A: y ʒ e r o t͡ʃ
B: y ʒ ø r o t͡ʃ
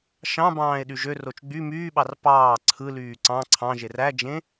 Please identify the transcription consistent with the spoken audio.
B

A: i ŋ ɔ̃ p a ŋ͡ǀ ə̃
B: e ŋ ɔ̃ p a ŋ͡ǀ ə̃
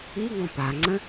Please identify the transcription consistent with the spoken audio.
A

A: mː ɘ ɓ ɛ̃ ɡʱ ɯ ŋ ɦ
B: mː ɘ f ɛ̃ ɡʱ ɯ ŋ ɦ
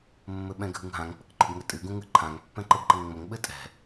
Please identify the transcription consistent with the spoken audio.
A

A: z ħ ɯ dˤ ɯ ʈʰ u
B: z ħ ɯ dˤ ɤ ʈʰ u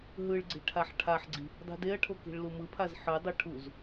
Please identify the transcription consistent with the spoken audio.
B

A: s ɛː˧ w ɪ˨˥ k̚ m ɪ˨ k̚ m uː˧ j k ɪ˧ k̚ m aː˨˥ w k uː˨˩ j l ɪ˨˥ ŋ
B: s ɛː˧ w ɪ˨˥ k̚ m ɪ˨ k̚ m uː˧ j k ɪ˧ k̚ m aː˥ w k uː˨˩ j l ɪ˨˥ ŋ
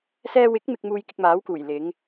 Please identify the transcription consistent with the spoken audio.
A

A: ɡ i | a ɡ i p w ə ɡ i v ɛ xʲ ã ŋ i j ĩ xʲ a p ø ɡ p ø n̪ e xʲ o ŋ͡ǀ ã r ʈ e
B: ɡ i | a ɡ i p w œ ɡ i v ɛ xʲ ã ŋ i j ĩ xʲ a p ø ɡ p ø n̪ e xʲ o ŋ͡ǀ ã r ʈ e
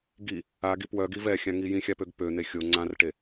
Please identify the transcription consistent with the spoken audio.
B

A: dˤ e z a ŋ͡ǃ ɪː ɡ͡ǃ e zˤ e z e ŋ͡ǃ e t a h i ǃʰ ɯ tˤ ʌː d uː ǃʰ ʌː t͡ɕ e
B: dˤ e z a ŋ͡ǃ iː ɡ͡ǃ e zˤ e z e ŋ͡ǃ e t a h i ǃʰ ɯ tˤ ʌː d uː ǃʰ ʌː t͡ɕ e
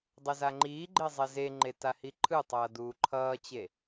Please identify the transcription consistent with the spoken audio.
B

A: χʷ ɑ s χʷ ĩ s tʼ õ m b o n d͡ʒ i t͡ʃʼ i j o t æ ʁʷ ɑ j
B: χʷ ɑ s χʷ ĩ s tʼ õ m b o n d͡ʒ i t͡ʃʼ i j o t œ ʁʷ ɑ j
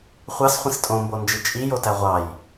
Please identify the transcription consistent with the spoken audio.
A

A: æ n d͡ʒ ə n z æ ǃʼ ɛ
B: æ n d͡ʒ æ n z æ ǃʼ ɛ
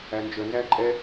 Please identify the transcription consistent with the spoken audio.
A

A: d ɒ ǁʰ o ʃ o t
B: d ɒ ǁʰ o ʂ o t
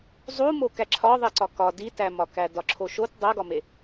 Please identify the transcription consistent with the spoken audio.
A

